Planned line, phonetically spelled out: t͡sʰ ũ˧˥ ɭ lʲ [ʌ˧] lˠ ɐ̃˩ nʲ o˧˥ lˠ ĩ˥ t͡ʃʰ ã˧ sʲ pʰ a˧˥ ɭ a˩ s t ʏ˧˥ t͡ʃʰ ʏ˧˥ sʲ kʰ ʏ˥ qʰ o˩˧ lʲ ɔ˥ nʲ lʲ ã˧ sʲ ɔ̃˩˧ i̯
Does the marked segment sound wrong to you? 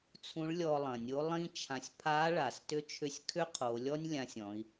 yes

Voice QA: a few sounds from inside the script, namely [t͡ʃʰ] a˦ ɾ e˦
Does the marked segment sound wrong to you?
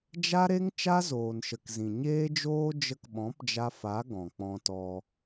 yes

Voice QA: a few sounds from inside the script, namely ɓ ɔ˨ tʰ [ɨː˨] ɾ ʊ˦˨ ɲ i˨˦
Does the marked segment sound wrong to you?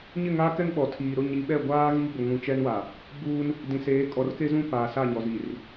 yes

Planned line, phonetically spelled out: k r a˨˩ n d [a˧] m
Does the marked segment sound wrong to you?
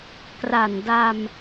no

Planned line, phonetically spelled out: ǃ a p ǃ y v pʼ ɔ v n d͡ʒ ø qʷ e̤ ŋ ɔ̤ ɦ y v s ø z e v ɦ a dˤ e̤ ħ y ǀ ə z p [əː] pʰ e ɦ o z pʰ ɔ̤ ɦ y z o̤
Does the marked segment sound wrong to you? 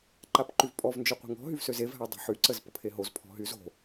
yes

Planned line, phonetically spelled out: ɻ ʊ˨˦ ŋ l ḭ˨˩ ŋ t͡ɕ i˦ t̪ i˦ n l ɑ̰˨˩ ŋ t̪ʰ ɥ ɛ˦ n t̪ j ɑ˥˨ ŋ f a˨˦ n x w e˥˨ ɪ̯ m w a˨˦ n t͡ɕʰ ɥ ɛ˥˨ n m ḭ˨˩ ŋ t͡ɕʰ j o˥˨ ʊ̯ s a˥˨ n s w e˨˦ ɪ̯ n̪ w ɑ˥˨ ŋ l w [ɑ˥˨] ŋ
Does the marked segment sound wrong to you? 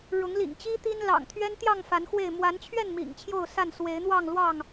no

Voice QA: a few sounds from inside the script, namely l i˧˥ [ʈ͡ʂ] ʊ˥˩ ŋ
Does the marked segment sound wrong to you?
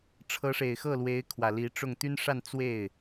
no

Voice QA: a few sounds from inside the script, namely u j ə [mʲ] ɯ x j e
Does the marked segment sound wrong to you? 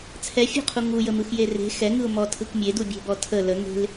yes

